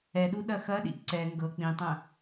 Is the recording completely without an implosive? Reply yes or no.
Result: no